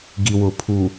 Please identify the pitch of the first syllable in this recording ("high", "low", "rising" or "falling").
low